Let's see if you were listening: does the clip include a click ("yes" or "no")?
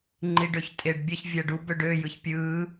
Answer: yes